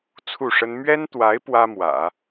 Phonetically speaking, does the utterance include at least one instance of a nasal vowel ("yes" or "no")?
no